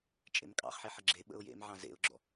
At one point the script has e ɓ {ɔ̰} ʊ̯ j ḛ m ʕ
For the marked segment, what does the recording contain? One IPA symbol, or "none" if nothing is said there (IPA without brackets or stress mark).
ə̰